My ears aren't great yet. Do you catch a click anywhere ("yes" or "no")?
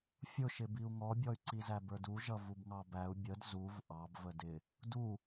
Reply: yes